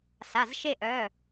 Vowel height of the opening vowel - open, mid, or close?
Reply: open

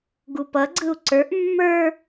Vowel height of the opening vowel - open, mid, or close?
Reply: close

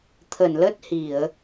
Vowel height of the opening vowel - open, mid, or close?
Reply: mid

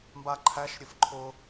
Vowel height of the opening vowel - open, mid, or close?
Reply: open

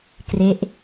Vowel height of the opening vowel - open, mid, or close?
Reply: mid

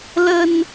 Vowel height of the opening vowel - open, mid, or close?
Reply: mid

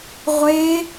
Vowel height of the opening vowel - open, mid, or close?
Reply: mid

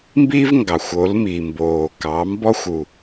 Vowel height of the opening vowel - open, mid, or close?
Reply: close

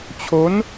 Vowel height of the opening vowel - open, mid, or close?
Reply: mid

